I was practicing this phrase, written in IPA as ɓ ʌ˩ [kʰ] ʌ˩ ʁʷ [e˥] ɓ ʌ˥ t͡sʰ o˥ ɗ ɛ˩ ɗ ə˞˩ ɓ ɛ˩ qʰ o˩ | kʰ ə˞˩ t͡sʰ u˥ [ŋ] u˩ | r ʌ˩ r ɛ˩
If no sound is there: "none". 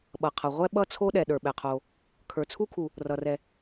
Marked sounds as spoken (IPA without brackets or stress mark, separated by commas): qʰ, ɛ˥, kʰ